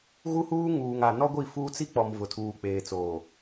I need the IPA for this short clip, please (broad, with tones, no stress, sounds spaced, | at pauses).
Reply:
ɣ u˦ h uː˦ ŋ uː˨ ŋ a˨ n ɔ˦ ɡʷ i˦˨ f uː˦ t͡s i˦ k͡p ɔ˨ m v ʊ˨ tʰ uː˨ k͡p eː˨ t͡s oː˨